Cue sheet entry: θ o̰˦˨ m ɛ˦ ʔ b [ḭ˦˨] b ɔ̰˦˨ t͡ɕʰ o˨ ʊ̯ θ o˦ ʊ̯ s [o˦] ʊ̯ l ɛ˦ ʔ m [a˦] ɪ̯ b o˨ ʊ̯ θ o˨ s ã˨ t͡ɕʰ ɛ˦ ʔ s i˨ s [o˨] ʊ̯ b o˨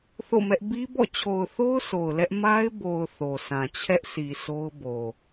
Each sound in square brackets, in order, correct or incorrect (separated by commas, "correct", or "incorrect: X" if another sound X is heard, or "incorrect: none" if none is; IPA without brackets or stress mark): incorrect: i˦, incorrect: o˨, correct, incorrect: o˦